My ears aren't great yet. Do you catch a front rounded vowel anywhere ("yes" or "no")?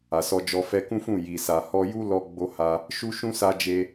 no